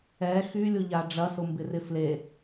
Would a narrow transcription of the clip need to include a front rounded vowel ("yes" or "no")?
yes